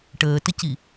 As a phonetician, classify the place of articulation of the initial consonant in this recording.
retroflex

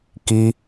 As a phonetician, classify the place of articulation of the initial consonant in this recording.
velar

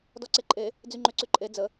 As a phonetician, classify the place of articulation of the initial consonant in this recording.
alveolar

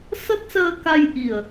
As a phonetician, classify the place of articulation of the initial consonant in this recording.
alveolar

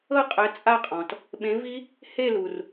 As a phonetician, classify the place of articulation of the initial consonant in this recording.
uvular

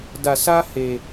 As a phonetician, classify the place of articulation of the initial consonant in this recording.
alveolar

